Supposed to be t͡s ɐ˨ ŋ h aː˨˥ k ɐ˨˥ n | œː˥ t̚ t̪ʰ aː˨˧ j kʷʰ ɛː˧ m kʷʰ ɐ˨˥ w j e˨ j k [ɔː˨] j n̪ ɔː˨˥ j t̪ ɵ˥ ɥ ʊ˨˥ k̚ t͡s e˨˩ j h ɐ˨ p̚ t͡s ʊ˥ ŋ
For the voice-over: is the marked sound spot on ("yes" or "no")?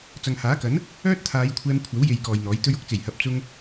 yes